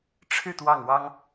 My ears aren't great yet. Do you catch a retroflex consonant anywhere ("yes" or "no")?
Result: yes